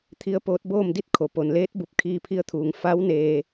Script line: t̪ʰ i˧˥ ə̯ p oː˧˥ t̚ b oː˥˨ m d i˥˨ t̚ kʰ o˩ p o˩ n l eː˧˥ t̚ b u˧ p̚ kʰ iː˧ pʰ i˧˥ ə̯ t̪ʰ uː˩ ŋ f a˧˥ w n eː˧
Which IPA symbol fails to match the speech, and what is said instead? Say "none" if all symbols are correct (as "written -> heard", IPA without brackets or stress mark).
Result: none